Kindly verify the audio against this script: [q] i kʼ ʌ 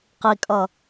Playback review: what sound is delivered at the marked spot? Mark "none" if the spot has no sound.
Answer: q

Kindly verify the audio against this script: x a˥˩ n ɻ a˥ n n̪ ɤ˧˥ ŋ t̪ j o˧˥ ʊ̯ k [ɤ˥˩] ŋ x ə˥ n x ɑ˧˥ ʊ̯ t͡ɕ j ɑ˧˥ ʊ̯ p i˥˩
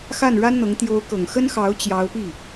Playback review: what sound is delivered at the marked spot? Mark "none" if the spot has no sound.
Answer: ɤ˨˩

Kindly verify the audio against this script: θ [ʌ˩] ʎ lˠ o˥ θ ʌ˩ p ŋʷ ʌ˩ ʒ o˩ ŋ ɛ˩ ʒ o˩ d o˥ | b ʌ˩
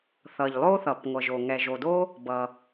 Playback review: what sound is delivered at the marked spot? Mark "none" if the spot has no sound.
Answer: ʌ˩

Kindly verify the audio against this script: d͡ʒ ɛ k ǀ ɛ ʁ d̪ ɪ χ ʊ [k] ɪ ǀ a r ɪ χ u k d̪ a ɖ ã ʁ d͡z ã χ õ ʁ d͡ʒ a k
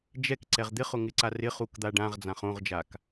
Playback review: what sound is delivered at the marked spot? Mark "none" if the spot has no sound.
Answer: ŋ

